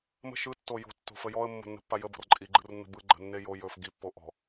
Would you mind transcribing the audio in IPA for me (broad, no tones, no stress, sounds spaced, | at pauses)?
m ə̤ ʃ ɯ tː o j o̤ tː o̤ f ə j ɔ ə̯ mː o̤ nː ə̤ pː a j ə b ɔ̤ r ǃʼ i ɡ͡ǃ ɯ r nː ə̤ b ɯ ɡ͡ǃ ə̤ nː e j o j ɵ f ɡ i pː o ʔ ɔ̤